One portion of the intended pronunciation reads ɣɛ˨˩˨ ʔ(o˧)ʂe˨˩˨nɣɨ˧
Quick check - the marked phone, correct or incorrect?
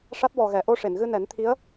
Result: correct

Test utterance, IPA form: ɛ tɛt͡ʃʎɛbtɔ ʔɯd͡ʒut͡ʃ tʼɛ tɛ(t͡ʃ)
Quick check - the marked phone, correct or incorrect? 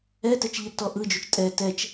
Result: correct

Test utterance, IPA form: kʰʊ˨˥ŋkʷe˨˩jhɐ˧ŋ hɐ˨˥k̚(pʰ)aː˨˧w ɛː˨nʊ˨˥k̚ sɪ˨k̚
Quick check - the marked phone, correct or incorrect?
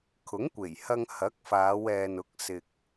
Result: incorrect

